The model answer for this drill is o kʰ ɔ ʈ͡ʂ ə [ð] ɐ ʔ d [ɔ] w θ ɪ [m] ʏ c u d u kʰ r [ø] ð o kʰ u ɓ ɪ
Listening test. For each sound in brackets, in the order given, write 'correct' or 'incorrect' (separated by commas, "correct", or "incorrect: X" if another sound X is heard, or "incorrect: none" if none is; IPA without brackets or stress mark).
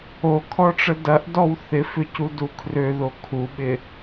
incorrect: d, correct, incorrect: f, correct